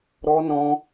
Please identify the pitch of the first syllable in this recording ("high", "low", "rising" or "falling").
high